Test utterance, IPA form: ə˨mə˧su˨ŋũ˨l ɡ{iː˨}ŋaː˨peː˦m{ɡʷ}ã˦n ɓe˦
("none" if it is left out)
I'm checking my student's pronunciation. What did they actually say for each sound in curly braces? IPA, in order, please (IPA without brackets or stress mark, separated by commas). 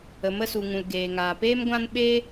eː˨, ɡʷ